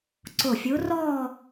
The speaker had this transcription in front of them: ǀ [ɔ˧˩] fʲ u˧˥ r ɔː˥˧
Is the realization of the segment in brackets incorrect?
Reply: yes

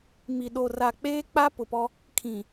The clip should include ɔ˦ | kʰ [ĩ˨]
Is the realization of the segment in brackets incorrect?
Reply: no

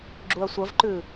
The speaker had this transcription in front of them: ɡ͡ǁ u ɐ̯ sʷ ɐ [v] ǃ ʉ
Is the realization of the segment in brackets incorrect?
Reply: no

